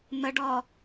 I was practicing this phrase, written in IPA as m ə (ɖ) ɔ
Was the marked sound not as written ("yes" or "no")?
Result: no